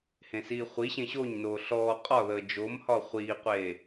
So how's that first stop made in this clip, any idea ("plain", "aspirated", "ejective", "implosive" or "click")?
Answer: ejective